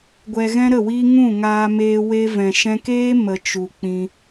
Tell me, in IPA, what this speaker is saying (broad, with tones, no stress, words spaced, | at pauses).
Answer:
ɡʷɛ˧ɣɛ̃˦ɾə˦˨ wi˦ ŋũ˦˨ŋaː˧meː˧ we˧vɛ̃˨ʃɛ̃˧keː˦ mə˨ t͡ʃu˨k͡pĩ˧